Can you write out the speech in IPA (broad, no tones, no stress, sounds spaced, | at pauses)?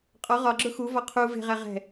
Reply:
qʼ ɒ ʁ ɒ ɡ͡ǁ ʊ x u v ɒ qʰ u v e̤ ʁ æ ʁ ɛ̤